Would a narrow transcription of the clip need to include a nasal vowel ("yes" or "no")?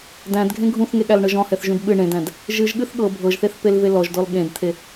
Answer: yes